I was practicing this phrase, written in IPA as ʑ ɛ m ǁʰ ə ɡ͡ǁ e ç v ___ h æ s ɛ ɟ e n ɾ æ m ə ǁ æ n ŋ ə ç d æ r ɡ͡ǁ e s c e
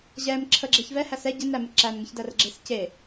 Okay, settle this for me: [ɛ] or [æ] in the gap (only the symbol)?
ɛ